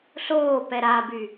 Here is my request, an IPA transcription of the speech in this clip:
ɬoːpɛ ɾaby

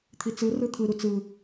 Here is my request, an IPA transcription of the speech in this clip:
t̪ʰit͡sɯrɯ t̪ʰɯɾu t͡sɯ

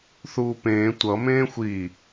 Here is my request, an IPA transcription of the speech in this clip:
θuːpẽː tʷʌ mẽːxʷi

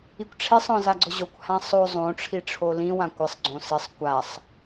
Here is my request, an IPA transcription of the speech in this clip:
ikʷʈ͡ʂʰesˤɔ̃ zaɡ͡ǀʊʑokʷhã sˤo zˤõʈ͡ʂʰi ʈ͡ʂʰolĩwã kʷɪsˤɡ͡ǀõ sɪsˤ kʷasˤ

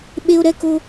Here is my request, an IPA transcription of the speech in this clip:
ɓe˦o̯ɾɛ˦ko˦

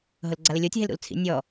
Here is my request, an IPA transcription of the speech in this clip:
ɦʊlɡ͡ǀalɪlʲotʲ ɦelɾṵlt͡sʰḭ nʲɔ

